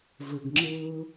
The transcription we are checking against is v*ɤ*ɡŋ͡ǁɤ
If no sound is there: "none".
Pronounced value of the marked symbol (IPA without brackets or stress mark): ə˞